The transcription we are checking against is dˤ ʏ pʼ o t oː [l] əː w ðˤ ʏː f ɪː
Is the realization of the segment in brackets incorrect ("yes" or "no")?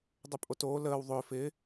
no